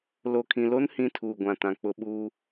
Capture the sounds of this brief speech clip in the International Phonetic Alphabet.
l o˨ kʰ ĩ˨ l o˦ n h ĩ˦ tʰ uː˨ ɡʷ ã˨ t ã˨ k͡p ʊ˦ ɓ uː˦

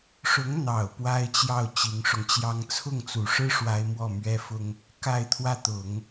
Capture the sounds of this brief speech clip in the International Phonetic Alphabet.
ʂ ʊ˧˥ ŋ n̪ ɑ˨˩ ʊ̯ p w a˥ ɪ̯ t͡ɕ j ɑ˥˩ ʊ̯ t͡ɕ i˧˥ ŋ ʂ ʊ˧ ŋ t͡ɕ j ɑ˥ ŋ t͡sʰ ʊ˥˩ ŋ t͡s u˨˩ ʂ ɻ̩˥ ʂ w a˥ ɪ̯ m w ɔ˥˩ m ɥ ɛ˥ f ʊ˥ ŋ | k a˥˧ ɪ̯ t̪ʰ w ä˥˩ t̪ ʊ˨˩˦ ŋ

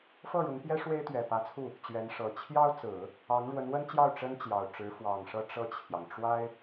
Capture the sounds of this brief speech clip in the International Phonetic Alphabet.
f ɤ˥˩ ɻ ʊ˧˥ ŋ p j ɛ˥ ʂ w e˥ ɪ̯ t̪ ɥ ɛ˨˩ p ä˧˥ t͡sʰ u˥˩ | t͡ɕ ɥ ɛ˧˥ n ʂ ɤ˨˩ t͡ɕʰ j ɑ˥ ʊ̯ t͡s ɹ̩˨˩˦ | ɑ˧˥ ŋ ɻ w ə˧˥ n w ə˥ n t͡ɕ j ɑ˥˩ ʊ̯ ʈ͡ʂ ə˥ n t͡ɕ j ɑ˨˩ ʊ̯ ʈ͡ʂ ɻ̩˧˥ f w ɑ˨˩ ŋ ʂ ɤ˥˧ ʈ͡ʂ ɤ˥˩ t͡ɕʰ j ɑ˩ ŋ ʈ͡ʂ w a˥ ɪ̯

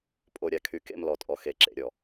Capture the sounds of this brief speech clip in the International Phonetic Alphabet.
pʼ o˨ ɾʲ a˨ kʰ y˨ k ḛ˦˨ m l ɔ˨ tʼ ɔ˨ x e˨ ǁ ḛ˨ ɾʲ ɔ˨

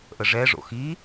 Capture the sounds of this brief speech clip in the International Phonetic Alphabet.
ʔ ə ʐ ɛ ʐ o̰ x i

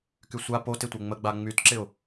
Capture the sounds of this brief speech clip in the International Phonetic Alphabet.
k y sʷ a p o t ɪ tʷ ɛ ŋ͡m ə ɡ͡b a ŋ͡m y t ǁ ɪ ʊ̯

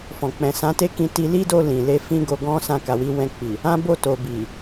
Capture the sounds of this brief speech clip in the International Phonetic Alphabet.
f ɔ̃˨ k͡p ɛ̃˨ s ã˨˦ t e˦ k ĩ˧ t i˧ l i˦ d o˧ l ĩ˨ l e˧ f ĩ˦ ɡ o˧ ɡ ɔ̃˦ s ã˧ k a˨ w i˨˦ w ɛ̃˧ k͡p i˨ | ã˦ b o˦˨ t o˨ b i˨

